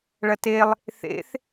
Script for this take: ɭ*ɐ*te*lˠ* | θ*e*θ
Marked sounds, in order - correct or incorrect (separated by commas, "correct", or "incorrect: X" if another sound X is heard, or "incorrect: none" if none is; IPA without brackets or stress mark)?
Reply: correct, correct, incorrect: ḛ